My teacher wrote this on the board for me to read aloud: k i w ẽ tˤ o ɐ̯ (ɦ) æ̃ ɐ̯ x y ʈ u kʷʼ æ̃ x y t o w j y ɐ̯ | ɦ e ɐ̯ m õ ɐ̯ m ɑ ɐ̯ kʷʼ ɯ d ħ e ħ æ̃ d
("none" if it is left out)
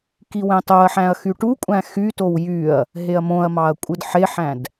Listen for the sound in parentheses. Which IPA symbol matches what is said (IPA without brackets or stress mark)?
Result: ħ